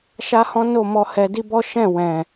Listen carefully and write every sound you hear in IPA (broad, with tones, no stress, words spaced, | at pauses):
ʃa˦hɔ̃˦no˦˨ mɔ˧hɛ˧di˦ bɔ˦ʃɛ̃˦˨wɛ̃˨